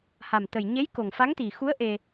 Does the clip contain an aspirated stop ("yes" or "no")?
no